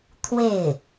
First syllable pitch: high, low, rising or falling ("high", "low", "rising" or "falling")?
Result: falling